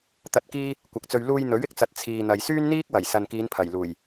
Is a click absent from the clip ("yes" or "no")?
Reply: yes